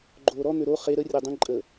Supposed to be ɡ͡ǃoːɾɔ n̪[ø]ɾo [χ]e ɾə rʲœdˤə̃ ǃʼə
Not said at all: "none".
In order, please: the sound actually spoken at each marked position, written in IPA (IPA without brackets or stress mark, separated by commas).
ø, χ